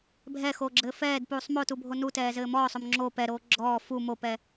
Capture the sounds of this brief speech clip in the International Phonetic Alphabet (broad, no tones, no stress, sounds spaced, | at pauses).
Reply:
bʱ ɛ x oː ɡ͡ǁ ɘː f ɛː d p uː sˤ m o t u bʱ o n u t ɛː z ɘː m ɔː sˤ o m ŋ͡ǁ o p ɛ ɾ oː ɡ͡ǁ ɔː f u m o p ɛ